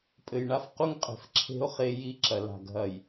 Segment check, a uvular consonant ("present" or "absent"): present